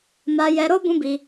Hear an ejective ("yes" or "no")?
no